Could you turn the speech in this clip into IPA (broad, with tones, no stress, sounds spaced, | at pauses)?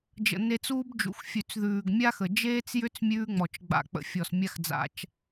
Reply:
d͡ʒ ə̰˨ n e˧ t͡s uː˦ b d͡ʒ ṵ˨ x fʲ ʉ˨ t͡s ð ʉː˨ ɡ mʲ a˦ x ə˨ d͡ʒ eː˦ t͡s j ʏ˦ t͡s mʲ ʉː˧ ŋ͡m ɔ˨ t͡ʃ ɡ͡b a̰˨ k͡p ə̰˨ fʲ ɔ˨ s mʲ a˦ x d͡z a̰˧ t͡ʃ